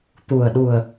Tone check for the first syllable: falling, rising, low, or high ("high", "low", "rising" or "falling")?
low